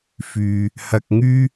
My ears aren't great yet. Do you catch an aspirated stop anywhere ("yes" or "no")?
no